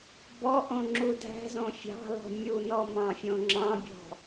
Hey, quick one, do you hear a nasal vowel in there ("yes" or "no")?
yes